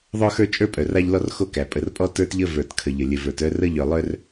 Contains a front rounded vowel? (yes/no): yes